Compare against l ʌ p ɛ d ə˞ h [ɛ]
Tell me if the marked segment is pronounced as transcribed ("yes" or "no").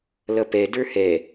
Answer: yes